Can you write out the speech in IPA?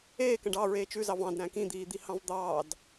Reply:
eːkæ̃ɖ ɑ ɹeːt͡ʃʉzɑv ɑ̃dɾæ̃ kĩd̪iːd̪ihɑ̃v d̪ɑːd

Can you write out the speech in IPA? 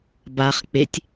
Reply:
baχ k͡petʲ

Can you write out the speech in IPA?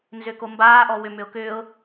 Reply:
nzʏkombaːʔɔ wʏmʏʊ̯ kʏːʊ̯

